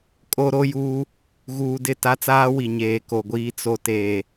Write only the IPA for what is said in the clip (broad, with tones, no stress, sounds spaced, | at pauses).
kʼ o˦ ɾ o˦ j uː˦ | ɣ uː˨ d ɪ˦˨ t a˦ t͡s aː˦ w i˨ ɲ eː˨ k o˨ ɡʷ iː˦ t͡s o˨ t eː˨